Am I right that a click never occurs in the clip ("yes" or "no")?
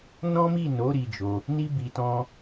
yes